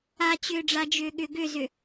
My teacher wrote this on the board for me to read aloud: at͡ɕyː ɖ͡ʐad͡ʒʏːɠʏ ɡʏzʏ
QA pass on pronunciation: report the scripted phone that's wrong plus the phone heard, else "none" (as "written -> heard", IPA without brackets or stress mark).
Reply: yː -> ʏː